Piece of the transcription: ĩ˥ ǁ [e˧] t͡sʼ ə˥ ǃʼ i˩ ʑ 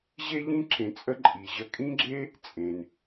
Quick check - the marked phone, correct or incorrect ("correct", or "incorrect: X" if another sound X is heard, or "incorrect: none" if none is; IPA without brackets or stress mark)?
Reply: incorrect: ẽ˧